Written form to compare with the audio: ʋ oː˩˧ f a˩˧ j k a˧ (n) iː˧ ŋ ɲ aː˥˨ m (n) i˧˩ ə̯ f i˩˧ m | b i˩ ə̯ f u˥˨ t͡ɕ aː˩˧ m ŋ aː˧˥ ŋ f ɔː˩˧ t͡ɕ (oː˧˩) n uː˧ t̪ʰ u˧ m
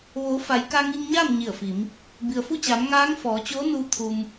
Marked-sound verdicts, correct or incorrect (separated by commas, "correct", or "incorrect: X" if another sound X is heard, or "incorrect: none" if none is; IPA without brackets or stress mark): incorrect: ŋ, incorrect: ɲ, incorrect: oː˧˥